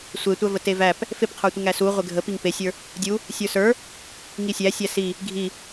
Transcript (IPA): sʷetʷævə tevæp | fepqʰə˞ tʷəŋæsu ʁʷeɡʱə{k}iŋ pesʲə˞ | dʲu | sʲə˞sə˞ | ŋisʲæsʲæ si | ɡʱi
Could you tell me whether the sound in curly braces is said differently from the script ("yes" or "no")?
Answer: yes